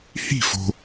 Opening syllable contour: falling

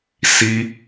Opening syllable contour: high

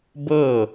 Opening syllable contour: falling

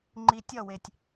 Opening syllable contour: low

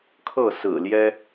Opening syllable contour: falling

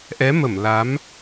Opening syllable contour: rising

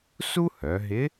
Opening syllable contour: high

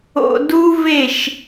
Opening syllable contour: low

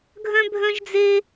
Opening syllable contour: high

